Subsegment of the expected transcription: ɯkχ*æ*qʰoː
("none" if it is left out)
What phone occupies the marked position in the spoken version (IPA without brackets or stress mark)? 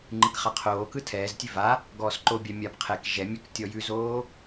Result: a